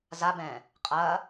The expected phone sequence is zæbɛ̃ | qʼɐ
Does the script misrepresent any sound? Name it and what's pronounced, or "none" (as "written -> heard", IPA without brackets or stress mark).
æ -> a